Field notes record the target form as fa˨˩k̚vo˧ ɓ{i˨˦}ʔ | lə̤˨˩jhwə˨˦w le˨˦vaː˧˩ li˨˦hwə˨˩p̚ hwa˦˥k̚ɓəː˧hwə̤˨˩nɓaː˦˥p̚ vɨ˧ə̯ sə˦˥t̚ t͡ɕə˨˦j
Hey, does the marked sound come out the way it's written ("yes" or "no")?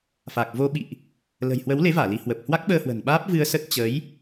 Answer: no